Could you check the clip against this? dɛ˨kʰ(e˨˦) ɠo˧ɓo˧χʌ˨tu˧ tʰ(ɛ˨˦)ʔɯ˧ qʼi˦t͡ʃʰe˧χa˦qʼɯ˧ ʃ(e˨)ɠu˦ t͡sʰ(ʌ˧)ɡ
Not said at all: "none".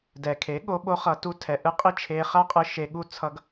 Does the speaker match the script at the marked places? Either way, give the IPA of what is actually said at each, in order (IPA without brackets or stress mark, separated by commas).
e˨˦, ɛ˨, e˧, ʌ˦